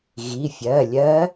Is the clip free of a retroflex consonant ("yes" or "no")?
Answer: yes